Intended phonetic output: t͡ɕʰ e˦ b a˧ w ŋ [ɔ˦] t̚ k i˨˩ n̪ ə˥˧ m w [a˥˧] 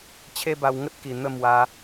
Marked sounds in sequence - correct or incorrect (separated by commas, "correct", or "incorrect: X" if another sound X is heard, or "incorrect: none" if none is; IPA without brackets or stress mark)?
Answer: incorrect: ə˦, incorrect: a˧